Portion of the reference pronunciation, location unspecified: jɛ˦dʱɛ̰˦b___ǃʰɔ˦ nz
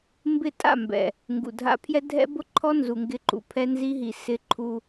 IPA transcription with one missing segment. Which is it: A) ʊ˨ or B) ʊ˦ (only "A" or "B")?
B